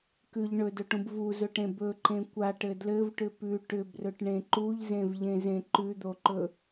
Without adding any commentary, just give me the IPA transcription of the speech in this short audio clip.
kʉʎ ɳɵdɵʈũb vuzɵʈẽ bɵǃẽ kʷaʈɘ dlɘvʈʏ pʉ ʈʏbrɵʈɳẽ ǃuʎzẽvʎẽzẽ ǃʉd̪oǃɵ

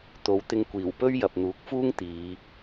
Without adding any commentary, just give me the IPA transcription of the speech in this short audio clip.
t̪o˨˧wt̪ɪ˧ŋ kʷiː˨˩wpɵ˥ɥ jɐ˨p̚n̪uː˨˥k̚fuː˥ŋ t̪iː˨˧

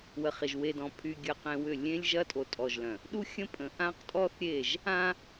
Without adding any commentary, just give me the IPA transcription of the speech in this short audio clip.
wə˨χɪ˨ʒ we˨dɔ̃˨pʰy˨ ɡʲə˨qẽ˨ wʏ˦˨ lʲẽ˦lʲ ʒɐ˦tʼo˨tʼɔ˨ʒlœ̃˨ | ɗu˦xʲə̃˦ pʼə̃˨ ʔã˦qtʼɔ˦θɾʲe˦˨ʒ | ã˦

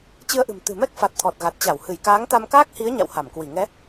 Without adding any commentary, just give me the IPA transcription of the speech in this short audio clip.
t͡ɕɨ˧ə̯ʔɨ̤˨˩m t̪ɨ̤˨˩mɛ˦˥k̚fa˨˩t̚ t̪ʰɔ˨˩t̚ɣa˨˩t̚ t͡ɕa˧˩w hɨ˧˩j kaː˨˦ŋt̪a˧mkaː˦˥k̚hi˨˦ə̯ ɲa̰˧˨wha˧˩mkwi˧˩ ŋɛ˨˦

